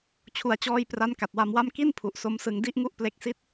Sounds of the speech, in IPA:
t͡ɕʰu˩˦a̯t͡ɕɔː˧j pra˦˥nka˨˩t̚wa˧mwa˥˩m ki˥˩npʰu˨˩ʔ so˦˥msɯ˧ŋ di˥˩ʔŋu˥˩ʔple˦˥k̚si˥˩t̚

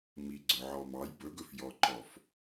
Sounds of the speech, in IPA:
miɡ͡ǀɵʕɔmɑj bɵɡɵfjɔǃɔf

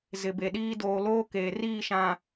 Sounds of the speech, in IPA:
zɪ˨be˨ɗiː˦ doː˨loː˦ keː˨ riː˦˨ʃã˨

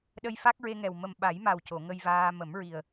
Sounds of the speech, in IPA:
ɗə˧jfa˦˥k̚ɹe˧ŋɛ˨˩w mə˨˩mɓa˨˩˦jma˨˩w co˨˩˨ŋə˧jvaː˧ mə˨˩˦mɹi˨˩ə̯

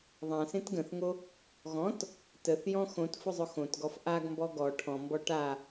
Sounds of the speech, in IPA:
ðˤãsẽt ɡə̃θŋo | ɣɔ̃t | təθjɔ̃ xõt fʊzˤʊxõtɡɔf ʔaɡmbɔ ɡɔ ʈʰɔ̃mbɔ ʈa

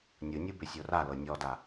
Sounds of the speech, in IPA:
nʲɯnʲɯ bʏsʲora lɤnʲɔda

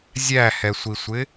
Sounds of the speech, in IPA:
zʲæhɛsʷisʷɪ

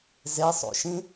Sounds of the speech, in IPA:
zesˤo̰ʃĩ

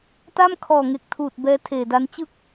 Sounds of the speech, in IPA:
ta˥˩m kʰɔː˨˩ŋe˨˩k̚tʰuː˨˩t̚ bɛː˦˥tʰeː˨˩da˦˥n t͡ɕɯ˥˩k̚

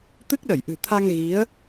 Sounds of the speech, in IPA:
t̪ɨ˦˥k̚ɗə˧˩jʔɨ̤˨˩ t̪ʰa˧ŋ ɣi˨˦ə̯

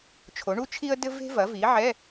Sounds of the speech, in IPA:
t͡ʃʰo˩˥ɳu˥t͡ʃʰi˥ə̯dɘ˥ ve̤˥vɐ˩˥vi˩˥ʕɛ˧˥˧

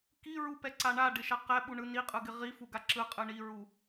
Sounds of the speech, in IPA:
kiɹupɛǀa ɳaɖɪʃa qɛɓuɳɯ niqʼɯɡɪ ʁifuɡa ǁɯqʼɯ ɳiɹu

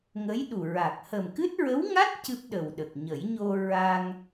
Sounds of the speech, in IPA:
ŋə˧˥jɗu˨˩ ɹa˨˩k̚ hə˨˩mkɨ˦˥t̚ ɹə˧˥wŋa˦˥t̚ cɨ˦˥p̚ɗə˨˩wɗə˨˩k̚ ɲə˨˩˦j ɲo˧ ɹa˧ŋ

